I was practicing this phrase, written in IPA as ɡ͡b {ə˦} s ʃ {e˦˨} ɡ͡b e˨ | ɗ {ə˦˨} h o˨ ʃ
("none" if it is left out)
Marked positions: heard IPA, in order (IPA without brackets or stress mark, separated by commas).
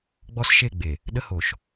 ɔ˦, e˦˨, ə˦